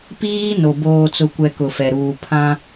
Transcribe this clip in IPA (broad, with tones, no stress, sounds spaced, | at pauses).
p iː˦ n o˨ b oː˨ t͡s ʊ˨ kʷ ɛ˨ k ʊ˨ f ɛ˨ ɾ uː˨ pʰ ã˦